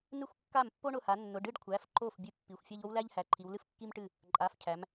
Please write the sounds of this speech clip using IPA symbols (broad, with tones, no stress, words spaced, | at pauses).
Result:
nɨ˥˩xʷkːa˥˩m pːo˥ɳʊ˩˧˩ha˩˧nːʊ˩˧˩ ɖɨ˥˧ɖ kʷʰæ˩˧˩fǃo˥˩f bʲɨ˧˥˧pːi˩˧˩xʷfʲa˥ʎ o˥wlæ˥ʎhæ˩˧ǃʰi˩˧w lɨ˥fkːi˥mʈɨ˥˩ | ǃʼa˩˧˩fcʰæ˩˧m